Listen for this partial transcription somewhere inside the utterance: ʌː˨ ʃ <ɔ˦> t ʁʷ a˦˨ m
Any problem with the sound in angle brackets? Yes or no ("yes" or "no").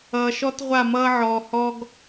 no